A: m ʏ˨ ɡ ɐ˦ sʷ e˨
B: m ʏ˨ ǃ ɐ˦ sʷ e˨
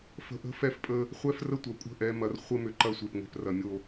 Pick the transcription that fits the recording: B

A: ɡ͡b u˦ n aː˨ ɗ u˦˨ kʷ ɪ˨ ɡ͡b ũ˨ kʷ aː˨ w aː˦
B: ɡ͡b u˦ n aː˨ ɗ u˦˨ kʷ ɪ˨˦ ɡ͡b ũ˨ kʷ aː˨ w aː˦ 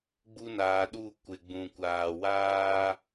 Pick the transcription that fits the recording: A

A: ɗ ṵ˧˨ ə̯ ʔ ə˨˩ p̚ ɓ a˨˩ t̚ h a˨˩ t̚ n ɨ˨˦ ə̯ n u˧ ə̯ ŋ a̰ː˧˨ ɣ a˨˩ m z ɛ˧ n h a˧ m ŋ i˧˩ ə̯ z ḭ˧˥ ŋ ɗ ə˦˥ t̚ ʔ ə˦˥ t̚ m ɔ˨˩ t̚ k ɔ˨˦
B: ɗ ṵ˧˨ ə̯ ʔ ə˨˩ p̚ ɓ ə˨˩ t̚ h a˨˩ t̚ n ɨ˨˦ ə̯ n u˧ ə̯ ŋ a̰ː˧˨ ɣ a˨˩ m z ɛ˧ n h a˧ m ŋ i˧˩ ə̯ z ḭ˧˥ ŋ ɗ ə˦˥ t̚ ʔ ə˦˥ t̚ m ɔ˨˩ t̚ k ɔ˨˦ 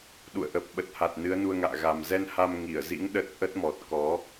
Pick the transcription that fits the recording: B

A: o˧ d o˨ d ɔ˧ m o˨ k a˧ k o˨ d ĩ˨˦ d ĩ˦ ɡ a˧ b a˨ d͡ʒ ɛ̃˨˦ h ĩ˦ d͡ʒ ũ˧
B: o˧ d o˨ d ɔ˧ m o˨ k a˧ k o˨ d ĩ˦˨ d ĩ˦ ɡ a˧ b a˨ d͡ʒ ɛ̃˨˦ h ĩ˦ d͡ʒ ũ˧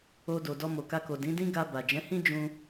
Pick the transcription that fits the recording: A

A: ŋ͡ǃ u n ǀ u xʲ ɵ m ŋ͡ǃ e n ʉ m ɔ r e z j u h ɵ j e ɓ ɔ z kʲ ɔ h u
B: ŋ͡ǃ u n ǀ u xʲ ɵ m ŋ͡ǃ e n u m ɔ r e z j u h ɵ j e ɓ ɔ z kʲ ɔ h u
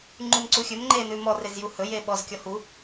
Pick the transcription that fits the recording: A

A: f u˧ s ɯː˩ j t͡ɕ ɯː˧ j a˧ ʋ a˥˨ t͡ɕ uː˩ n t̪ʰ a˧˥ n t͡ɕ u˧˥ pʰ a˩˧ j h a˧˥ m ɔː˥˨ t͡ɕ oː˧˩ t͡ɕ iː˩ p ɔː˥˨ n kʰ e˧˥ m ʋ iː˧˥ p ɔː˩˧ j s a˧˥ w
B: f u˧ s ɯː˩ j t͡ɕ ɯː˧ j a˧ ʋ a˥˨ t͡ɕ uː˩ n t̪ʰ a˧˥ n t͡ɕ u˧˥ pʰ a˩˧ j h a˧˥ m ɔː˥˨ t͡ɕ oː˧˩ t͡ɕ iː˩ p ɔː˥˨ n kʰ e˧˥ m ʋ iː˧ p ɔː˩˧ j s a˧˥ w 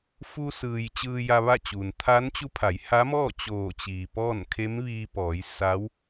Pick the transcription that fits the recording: B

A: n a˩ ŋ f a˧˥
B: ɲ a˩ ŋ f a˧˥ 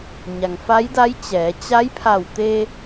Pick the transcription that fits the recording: B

